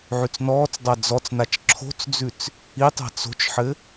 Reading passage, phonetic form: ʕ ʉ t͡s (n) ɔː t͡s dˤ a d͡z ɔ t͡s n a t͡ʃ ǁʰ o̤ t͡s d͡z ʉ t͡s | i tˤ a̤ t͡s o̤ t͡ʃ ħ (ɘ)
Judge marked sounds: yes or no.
yes, yes

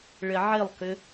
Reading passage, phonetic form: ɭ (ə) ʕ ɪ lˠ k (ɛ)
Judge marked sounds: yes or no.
no, no

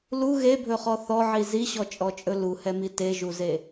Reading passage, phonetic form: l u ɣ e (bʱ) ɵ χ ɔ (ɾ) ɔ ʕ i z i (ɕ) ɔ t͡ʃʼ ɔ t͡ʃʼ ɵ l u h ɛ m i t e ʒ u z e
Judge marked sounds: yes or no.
yes, no, yes

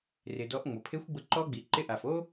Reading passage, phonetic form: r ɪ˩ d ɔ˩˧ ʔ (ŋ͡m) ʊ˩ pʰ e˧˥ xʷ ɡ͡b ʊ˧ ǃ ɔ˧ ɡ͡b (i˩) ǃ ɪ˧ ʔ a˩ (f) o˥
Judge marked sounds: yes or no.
yes, yes, yes

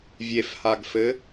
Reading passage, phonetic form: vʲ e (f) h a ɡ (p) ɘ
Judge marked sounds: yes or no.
yes, no

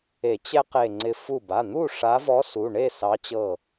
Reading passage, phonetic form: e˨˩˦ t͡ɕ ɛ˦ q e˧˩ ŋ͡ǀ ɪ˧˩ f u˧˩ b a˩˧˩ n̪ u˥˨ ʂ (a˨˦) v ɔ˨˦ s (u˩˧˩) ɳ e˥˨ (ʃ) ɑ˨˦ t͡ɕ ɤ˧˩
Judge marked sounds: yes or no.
yes, yes, no

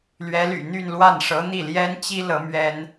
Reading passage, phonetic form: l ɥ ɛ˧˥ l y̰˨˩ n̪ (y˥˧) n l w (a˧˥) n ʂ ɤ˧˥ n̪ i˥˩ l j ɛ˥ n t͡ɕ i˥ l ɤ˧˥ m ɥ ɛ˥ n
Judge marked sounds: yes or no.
yes, no

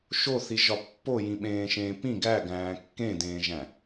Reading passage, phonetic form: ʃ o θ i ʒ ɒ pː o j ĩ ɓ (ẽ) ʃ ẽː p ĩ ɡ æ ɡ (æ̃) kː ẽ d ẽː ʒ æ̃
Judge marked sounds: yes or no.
no, no

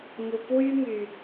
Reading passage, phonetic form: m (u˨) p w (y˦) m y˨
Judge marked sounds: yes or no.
yes, yes

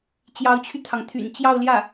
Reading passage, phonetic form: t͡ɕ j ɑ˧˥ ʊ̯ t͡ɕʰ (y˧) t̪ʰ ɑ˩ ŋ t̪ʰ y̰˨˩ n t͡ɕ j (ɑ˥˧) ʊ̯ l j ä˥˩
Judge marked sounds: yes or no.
yes, yes

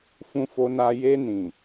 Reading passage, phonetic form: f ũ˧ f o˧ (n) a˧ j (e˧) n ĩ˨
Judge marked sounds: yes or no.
yes, yes

